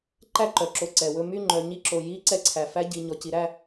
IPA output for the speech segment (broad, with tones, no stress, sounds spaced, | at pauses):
ǃ æ˥˧ ǃ œ˨ ǁ o˧˥ ǀ ɛ˨ w ɵ˥˧ m y˥˧ ŋ͡ǃ œ˨ ɲ i˧˥ ǁ o˨ j i˧˥ ǀ ɛ˧˥ ǀʰ æ˨ f æ˧˥ ɟ i˨ ɲ ɔ˨ c i˨ ɾ æ˥˧